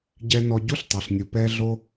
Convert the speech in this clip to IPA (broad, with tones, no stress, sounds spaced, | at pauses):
ɟ ɛ˧ n ɔ˧ ɟ u˦ ɬ tˤ ɛ˨ ɬ nʲ u˨ p ɛː˦ ɮ o˦